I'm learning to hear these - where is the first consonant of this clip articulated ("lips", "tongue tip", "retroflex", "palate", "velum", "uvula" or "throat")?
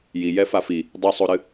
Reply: palate